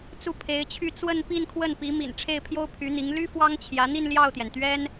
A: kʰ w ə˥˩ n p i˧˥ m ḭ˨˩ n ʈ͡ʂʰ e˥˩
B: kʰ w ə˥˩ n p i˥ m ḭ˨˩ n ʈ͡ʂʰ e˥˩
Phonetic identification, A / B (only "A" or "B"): A